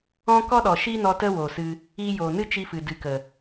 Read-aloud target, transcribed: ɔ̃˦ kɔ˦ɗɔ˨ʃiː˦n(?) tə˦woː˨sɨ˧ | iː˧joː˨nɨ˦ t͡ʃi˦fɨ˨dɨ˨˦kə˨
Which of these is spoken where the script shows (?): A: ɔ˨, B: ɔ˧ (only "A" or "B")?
B